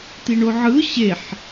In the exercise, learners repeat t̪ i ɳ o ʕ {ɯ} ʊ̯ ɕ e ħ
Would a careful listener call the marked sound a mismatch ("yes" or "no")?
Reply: no